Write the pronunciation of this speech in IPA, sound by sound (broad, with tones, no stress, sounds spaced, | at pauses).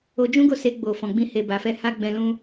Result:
o˧ d͡ʒ ũ˦ ɡ o˦˨ s e˧ ɡ͡b o˨ f ɔ̃˨ ɡ͡b ĩ˧ h e˨ b a˨ f ɛ˨˦ h a˦ ɡ͡b ɛ̃˧ l ũ˦